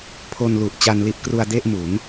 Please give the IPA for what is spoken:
pʰ o˧ n l u˨˩ ʔ t͡ɕ a˧ n l i˦˥ ʔ k r u˧ a̯ d e˥˩ ʔ m u˩˦ n

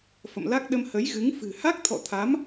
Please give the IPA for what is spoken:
f ə̰˧˨ m l a˦˥ k̚ ɗ ə˧ m h ə˨˦ j ɣ ɨ˨˦ ŋ f ɨ̤˨˩ h a˦˥ k̚ t̪ʰ ɔ̰˧˨ t̪ʰ a˨˦ m

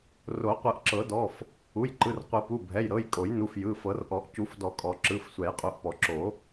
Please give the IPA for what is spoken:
r o˨˩˦ qʷ ɯ˨˩˦ ʔ ǁ ɤ˨˩˦ d ɔ˩˧˩ f | u˩˧˩ j ǃ ɯ˩˧˩ r qʷ ɯ˨˩˦ p u˩˧˩ bʱ ɛ˩˧˩ j ɾ ɤ˩˧˩ j kʼ o˨˩˦ j n u˩˧˩ f j ɯ˩˧˩ f ɤ˨˩˦ r ʔ ɔ˨˩˦ ʔ c u˨˩˦ f d ɔ˨˩˦ kʼ ɔ˨˩˦ ǁ ɯ˩˧˩ f sʷ ɛ˨˩˦ j qʼ u˩˧˩ ʔ p ɔ˨˩˦ ǁ o˨˩˦

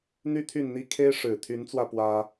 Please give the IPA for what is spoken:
n̪ y˥˨ t̪ʰ y˥˨ n n̪ i˦ kʰ e˦ ɪ̯ ʂ ɻ̩˨˩ t̪ʰ y˨˦ n t͡s w ä˧ p w ä˦

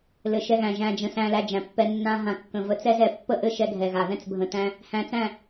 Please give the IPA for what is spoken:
l ɘ˨ ʃ ɛ˧ ɣ æ̃˨ ʒ æ̃˨ d͡ʒ ə̃˨ s æ̃˧ l æ˧ d͡ʒ æ̃˨ pː ɛ˧ nː ã˧ ɦ ã˨ kː ə̃˨ v ə˧ t͡s ɛ˦ z ɛ˧ pː ə˦˨ ʔ ɘ˦˨ ʃ ɛ˧ ɡʱ ɛ˨ ɣ a˨ ð ɛ̃˦ t͡s bʱ ə̃˧ t æ̃˧ | h æ̃˧ t͡s æ̃˦˨

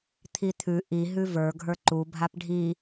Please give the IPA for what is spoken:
t̪ʰ i t̪ʰ ʉ ʔ i ɦ ʉ v ə˞ ɡʱ ə˞ ǃ u bʱ a p ɖʱ i

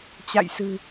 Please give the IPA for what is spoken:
t͡ɕ a̰˧˨ j s ɨ̤˨˩

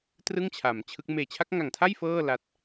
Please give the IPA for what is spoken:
t r ɯ˥˩ ŋ t͡ɕʰ a˩˦ m t͡ɕʰ ɯ˦˥ k̚ m eː˨˩ t͡ɕʰ a˦˥ k̚ ŋ a˨˩ ŋ tʰ a˥˩ j f ɤː˥˩ l a˦˥ t̚

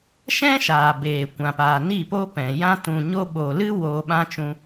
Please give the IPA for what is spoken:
ʃ ɛ̃˦ ʃ aː˨ b eː˨ kʷ ã˨ p aː˨ n i˦˨ p o˦ p ɛ̃˨ j ã˦ t ũ˨ ɲ o˧ ɓ o˨ l ɨ˦ w oː˧ ɓ ã˦ t͡ʃ ũ˧

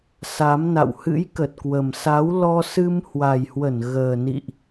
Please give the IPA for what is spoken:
s a˨˦ m n a̰˧˨ w h ɨ̰˧˥ j k ə˨˩ t̚ k w ə˨˩ m s a˨˦ w l ɔ˧ s ɨ˧ m h w a˨˩ j h w ə˧˩ n ɣ əː˨˩ n ḭ˧˨ ʔ

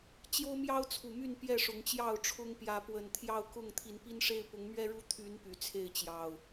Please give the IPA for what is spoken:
t͡ɕ j o˦ ʊ̯ m j ɑ˦ ʊ̯ t͡sʰ u˨˩ m y˥˨ n p j ɛ˥˨ ʂ ʊ˨˦ ŋ t͡ɕ j ɑ˥˨ ʊ̯ ʈ͡ʂʰ ʊ˦ ŋ p j ä˨˦ p w ə˨˩ n t̪ʰ j ɑ˥˨ ʊ̯ k ʊ˥˨ ŋ t̪ʰ i˨˦ n p i˦ n ʂ e˦ ɪ̯ p ʊ˨˦ ŋ m ɥ ɛ˦ ɻ u˦ t̪ʰ y˨˦ n p y˨˩ t͡sʰ e˥˨ ɪ̯ t͡ɕ j ɑ˨˩ ʊ̯

